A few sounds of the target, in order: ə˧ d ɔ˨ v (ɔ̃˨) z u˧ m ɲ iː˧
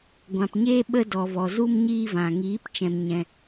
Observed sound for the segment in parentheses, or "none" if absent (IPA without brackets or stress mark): ɔ˨